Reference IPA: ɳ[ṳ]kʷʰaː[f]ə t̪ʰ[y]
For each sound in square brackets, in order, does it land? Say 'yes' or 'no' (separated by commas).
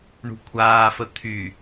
yes, yes, yes